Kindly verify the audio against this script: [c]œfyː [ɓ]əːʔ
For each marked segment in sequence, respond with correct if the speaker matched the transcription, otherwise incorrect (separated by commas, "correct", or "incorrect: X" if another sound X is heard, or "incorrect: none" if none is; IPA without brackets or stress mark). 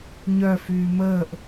incorrect: ɲ, incorrect: m